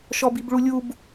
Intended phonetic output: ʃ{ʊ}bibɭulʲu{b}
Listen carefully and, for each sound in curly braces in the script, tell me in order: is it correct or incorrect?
incorrect: ɔ, correct

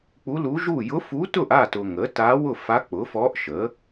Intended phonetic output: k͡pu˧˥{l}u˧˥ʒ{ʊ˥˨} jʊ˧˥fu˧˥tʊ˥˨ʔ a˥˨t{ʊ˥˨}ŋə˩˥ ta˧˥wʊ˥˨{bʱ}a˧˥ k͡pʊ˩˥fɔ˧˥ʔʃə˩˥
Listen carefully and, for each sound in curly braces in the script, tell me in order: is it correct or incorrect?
correct, incorrect: u˥˨, incorrect: ʊ˨, incorrect: f

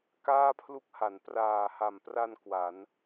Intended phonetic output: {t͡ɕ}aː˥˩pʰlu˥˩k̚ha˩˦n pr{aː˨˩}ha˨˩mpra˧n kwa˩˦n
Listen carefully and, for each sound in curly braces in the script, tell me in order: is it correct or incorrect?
incorrect: k, correct

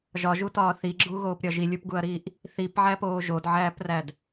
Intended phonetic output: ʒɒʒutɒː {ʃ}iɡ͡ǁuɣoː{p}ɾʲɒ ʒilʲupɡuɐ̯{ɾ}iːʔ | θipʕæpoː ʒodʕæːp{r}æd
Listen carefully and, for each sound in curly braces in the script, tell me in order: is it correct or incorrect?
incorrect: θ, correct, correct, correct

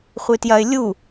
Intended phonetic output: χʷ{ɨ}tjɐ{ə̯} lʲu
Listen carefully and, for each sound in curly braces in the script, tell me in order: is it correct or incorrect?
correct, incorrect: ɪ̯

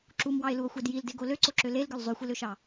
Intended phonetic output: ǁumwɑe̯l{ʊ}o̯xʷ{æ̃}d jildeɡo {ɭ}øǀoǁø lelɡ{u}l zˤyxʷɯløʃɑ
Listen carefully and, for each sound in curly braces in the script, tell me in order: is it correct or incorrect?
incorrect: u, incorrect: æ, incorrect: l, incorrect: ø

